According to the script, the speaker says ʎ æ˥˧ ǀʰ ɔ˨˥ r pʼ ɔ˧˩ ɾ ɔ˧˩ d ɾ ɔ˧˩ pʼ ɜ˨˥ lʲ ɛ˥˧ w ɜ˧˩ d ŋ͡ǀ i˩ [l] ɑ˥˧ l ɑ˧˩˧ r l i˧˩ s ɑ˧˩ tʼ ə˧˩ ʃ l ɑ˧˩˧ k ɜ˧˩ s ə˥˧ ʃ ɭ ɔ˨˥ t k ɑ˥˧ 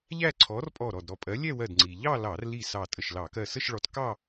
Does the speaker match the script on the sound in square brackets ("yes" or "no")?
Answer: no